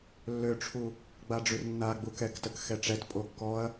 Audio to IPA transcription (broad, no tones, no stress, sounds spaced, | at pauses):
lː ø ʈ͡ʂʰ u | ɡ͡b a ɖ͡ʐ y r nː a ɡ͡b u k ɛ k t ə k x ɛ ʈ͡ʂ ɛ t pʼ o kː ɔ ɐ̯